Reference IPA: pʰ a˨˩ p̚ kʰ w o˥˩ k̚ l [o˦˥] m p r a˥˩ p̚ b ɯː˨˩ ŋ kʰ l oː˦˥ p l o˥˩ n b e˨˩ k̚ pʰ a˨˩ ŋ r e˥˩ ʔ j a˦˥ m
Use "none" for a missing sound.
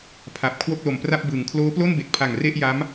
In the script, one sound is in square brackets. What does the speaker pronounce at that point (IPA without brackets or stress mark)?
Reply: o˨˩